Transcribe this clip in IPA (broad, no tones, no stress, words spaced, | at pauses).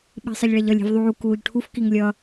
ɓi̤sˤʌʎɭɛʎʌlʲ i̤vðˤuː kuːʎʈʰuf kiŋlʲʌ